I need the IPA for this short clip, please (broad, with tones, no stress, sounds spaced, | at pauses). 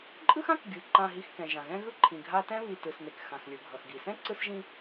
ǃʼ ɯ˥ x ã˥ k ɡʲ ɯ˩ ǃ ã˨ ɦ i˨ x k ɛ̃˩ ʒ ã˩ ɣ ɛ̃˦ ɣ ɯ˦ ǃʰ ĩ˩ ɡʱ a˦ t ɛ̃˥ β i˨ t ɯ˩ s n e˩ k x ã˩ x lʲ ɯ˩ ɡʱ ʌ˩ x ɡ i˩ s ɛ̃˥ ǀ ɯ˦ s ʒ ĩ˦